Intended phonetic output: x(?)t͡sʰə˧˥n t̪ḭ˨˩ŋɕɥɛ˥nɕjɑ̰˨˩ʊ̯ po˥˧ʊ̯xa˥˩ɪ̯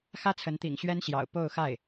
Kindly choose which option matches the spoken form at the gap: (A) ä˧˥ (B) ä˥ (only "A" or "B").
B